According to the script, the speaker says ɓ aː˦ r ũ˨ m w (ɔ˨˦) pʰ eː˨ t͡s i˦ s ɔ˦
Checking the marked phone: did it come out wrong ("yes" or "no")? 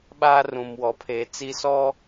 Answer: no